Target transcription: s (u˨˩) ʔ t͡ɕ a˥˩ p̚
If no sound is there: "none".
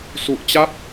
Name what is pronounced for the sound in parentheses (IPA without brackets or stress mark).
u˨˩